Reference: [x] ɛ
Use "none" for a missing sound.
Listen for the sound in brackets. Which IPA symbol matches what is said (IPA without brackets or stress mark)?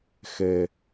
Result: x